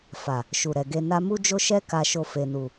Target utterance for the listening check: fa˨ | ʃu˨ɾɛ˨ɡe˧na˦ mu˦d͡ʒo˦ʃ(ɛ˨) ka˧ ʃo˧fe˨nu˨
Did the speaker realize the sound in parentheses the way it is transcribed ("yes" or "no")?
no